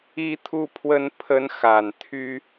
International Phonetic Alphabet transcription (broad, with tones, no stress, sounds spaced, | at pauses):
i˦ t̪ʰ u˦ pʰ w ə˦ n pʰ ə˦ n x a˨˩ n t̪ʰ y˦